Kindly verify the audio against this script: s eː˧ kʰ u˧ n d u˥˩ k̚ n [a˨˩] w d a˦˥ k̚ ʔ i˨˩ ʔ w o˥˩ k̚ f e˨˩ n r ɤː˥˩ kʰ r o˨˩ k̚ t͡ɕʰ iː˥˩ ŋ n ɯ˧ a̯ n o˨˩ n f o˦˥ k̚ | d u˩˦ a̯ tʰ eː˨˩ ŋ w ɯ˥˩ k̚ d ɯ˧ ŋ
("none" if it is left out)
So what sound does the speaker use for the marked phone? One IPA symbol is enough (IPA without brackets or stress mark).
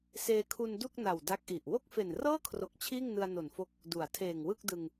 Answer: a˨˩